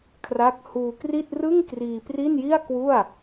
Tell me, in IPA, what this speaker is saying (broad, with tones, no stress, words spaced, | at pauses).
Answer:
kʰra˦˥k̚ huː˧kri˥˩t̚ rɯ˥˩ŋkriː˧ pri˥˩nji˥˩a̯ kwu˥˩a̯